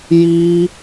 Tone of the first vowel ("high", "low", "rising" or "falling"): high